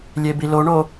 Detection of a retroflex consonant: present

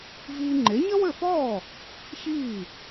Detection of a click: present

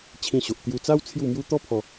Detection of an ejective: absent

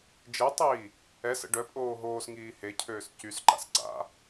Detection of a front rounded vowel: present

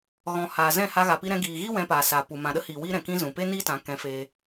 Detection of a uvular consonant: absent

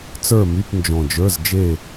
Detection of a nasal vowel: present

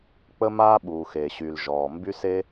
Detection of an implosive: present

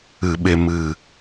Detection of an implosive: present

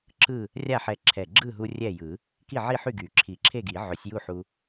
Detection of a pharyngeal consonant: present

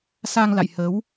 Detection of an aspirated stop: absent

